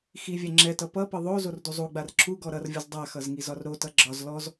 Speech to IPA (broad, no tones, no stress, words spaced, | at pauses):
xivʲɛ ŋ͡ǁɛtʌ pʌpʌ ðˤo zorduzˤuɡ͡bar ǁuɡɔ ɾʌrvʲʌz dˤaxʌz ŋizɒrɾotʌ ɡ͡ǁɒz lɔz